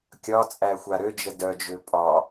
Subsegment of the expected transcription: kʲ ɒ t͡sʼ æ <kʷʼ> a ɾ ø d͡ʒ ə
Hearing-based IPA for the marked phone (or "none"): xʷ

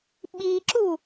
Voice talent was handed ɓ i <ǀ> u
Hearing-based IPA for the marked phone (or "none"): ǁ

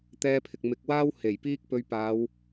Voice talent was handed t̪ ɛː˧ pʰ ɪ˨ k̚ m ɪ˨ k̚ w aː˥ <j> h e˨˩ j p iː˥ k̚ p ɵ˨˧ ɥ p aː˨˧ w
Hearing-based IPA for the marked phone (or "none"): w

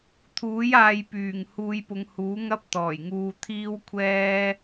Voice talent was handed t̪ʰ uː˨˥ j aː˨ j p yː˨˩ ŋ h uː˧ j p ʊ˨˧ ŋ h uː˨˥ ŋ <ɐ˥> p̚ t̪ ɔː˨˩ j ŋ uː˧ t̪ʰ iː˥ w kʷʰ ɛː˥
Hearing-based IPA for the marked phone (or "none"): ɐ˥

